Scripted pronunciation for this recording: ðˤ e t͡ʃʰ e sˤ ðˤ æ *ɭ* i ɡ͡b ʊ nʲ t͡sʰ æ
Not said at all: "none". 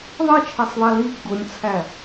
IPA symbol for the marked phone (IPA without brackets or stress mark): l